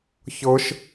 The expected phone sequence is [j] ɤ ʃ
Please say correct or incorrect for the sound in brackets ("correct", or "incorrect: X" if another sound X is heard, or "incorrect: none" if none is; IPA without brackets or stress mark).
incorrect: ç